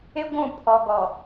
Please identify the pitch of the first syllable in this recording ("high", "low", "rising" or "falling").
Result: high